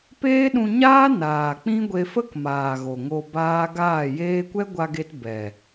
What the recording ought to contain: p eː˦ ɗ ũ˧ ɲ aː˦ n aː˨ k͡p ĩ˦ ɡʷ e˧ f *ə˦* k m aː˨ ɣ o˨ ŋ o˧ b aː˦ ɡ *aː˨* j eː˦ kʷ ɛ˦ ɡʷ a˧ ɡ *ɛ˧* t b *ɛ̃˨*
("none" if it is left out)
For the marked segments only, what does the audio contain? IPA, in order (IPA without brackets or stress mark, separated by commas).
ə˦, aː˦˨, e˧, ɛ˨